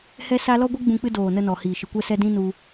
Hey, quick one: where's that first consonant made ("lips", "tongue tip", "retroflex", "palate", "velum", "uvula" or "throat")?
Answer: throat